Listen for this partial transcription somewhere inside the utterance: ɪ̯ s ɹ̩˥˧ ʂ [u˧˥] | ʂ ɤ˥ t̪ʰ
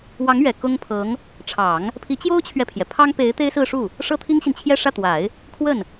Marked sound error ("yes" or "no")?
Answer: yes